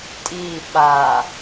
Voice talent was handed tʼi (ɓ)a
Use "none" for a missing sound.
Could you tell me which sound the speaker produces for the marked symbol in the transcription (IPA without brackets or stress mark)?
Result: ɓ